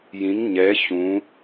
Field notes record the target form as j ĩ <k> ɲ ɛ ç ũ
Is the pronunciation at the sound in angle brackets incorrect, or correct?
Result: incorrect